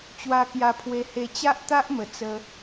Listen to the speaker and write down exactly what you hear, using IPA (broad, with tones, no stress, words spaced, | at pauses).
t͡ɕwa˧kja˧pʰwe˧he˧ t͡ɕa˦ʔt̪a˦ʔmə˨˩ t͡sə˧